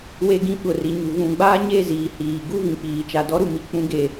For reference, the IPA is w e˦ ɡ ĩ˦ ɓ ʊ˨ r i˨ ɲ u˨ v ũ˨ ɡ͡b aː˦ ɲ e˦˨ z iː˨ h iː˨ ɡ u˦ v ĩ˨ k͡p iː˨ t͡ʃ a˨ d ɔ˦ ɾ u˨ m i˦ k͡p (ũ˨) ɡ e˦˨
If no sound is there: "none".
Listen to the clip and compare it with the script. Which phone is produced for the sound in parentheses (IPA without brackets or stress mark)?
ũ˦